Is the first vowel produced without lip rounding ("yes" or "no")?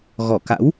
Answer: no